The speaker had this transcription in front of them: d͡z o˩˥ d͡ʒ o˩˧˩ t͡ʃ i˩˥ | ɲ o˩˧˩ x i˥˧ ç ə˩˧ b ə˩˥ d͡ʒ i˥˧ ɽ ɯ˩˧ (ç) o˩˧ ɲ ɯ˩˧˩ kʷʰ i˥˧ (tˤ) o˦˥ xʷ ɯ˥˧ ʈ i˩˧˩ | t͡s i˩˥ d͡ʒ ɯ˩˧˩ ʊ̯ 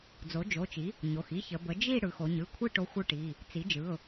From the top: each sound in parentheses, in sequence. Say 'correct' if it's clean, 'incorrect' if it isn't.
incorrect, incorrect

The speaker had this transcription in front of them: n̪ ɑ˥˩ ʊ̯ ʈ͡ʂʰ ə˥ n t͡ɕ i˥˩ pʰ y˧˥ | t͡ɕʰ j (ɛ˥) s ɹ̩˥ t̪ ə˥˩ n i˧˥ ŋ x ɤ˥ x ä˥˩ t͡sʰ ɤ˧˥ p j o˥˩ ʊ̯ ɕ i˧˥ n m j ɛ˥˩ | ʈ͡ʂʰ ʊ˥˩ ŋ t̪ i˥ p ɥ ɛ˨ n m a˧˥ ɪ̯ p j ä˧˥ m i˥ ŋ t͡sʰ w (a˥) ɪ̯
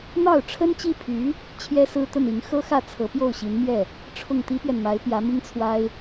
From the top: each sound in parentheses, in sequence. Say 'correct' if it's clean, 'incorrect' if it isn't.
correct, correct

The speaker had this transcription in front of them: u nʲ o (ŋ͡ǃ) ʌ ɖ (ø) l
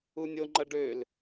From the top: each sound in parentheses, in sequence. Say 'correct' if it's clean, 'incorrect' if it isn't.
correct, correct

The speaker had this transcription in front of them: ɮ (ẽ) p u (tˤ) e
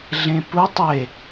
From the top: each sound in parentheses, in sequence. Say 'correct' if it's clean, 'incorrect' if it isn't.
correct, correct

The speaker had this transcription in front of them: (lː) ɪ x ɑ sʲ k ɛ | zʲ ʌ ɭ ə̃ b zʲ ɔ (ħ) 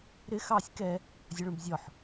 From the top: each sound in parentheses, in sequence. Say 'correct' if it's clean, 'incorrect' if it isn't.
incorrect, correct

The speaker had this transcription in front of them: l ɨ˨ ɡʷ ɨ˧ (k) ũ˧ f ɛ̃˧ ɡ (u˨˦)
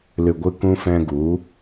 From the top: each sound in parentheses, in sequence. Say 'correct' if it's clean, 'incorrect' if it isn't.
correct, correct

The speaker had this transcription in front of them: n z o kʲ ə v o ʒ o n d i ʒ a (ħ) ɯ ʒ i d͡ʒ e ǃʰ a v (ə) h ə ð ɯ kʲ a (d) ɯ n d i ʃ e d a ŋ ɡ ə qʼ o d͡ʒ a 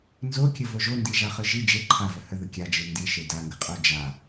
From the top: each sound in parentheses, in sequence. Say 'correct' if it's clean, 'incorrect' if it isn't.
incorrect, correct, incorrect

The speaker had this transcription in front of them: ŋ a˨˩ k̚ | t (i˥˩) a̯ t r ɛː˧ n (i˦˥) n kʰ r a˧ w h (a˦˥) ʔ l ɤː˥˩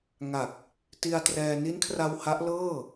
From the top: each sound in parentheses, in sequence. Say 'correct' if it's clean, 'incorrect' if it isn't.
incorrect, correct, correct

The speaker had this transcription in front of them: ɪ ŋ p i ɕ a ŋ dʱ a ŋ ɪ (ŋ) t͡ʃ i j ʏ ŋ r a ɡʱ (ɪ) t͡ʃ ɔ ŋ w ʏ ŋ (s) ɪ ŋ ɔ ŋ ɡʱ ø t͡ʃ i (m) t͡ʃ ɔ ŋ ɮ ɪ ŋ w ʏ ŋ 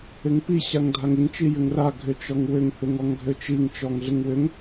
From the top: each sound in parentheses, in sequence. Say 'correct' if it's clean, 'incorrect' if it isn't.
correct, incorrect, incorrect, incorrect

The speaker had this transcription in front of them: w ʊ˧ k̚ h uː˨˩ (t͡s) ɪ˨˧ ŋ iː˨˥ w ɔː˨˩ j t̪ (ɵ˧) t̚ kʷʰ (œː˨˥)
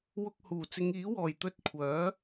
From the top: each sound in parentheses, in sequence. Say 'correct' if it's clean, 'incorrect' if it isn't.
correct, correct, correct

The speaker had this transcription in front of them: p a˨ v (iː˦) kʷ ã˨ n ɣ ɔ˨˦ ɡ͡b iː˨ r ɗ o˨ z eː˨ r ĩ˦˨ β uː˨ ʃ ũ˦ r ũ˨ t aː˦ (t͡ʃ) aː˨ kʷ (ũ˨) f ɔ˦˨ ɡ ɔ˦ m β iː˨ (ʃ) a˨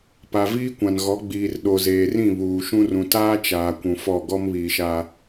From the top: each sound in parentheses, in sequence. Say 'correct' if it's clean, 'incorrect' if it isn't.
correct, correct, correct, correct

